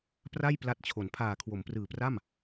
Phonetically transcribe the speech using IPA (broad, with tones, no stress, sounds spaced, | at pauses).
p r a˥˩ j p l a˦˥ t̚ t͡ɕʰ o˩˦ n pʰ aː˨˩ kʰ w o˩˦ m p r ɯː˨˩ p r a˥˩ m